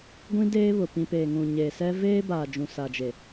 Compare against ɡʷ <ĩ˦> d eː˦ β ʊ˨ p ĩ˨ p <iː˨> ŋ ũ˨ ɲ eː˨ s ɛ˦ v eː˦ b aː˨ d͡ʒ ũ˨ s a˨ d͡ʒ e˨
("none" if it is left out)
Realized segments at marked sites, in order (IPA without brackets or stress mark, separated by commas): ĩ˦, eː˨